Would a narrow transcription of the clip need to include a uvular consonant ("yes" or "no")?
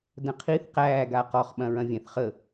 yes